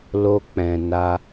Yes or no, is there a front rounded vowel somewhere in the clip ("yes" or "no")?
no